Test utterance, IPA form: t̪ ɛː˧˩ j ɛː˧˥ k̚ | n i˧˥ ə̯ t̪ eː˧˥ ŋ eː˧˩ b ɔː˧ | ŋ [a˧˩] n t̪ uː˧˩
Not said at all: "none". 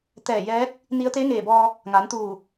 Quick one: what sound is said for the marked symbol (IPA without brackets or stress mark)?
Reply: a˩˧